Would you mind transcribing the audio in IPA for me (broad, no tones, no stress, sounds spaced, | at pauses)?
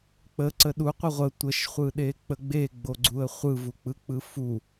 k͡p ə ǀ ə ɗ u qʷ ə ʁʷ ə tʷ ə ʃ χʷ ɯ ɗ e k͡p ə ɡ͡b e ɡ͡b o ɡ͡ǀ u ə̯ χʷ ɯ v u k͡p ɯ k͡p ɯ f u